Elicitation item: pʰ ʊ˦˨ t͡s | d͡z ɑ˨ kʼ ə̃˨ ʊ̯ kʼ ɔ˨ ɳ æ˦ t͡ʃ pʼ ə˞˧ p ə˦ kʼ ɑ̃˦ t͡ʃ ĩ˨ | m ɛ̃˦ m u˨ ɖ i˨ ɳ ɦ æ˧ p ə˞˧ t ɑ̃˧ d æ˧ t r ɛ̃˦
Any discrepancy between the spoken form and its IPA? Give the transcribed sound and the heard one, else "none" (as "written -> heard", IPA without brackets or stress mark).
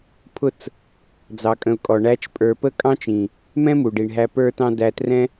none